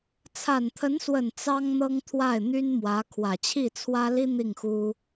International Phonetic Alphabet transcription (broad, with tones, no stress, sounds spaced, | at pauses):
t͡sʰ a˨˩ n t̪ʰ ə˧˥ n s w ə˨˩ n t͡s ɑ˥ ŋ n̪ ɤ˥ ŋ t̪ʰ w a˥˩ ɪ̯ n̪ y˥ n m w ä˧˥ kʰ w ä˨˩ t͡ɕʰ i˥˩ t͡sʰ w ä˥ l i˥ n̪ i˥˩ ŋ x u˥